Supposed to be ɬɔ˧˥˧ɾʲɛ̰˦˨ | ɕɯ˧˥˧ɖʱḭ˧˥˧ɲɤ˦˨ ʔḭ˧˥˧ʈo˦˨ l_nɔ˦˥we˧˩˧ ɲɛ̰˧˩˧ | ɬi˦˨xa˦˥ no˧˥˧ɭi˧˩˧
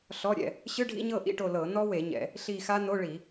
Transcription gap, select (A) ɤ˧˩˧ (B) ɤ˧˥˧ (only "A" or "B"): A